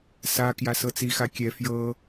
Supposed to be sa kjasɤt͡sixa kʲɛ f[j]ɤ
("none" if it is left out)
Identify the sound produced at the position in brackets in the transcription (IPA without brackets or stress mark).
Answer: j